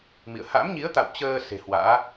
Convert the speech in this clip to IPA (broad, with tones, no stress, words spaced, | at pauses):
mḭ˧˨ə̯ ha̰˧˥mɲi˨˦ə̯t̪a̰˧˨w t͡ɕəː˧ se̤˨˩hwa̰ː˧˥